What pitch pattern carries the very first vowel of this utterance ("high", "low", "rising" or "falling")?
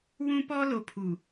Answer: high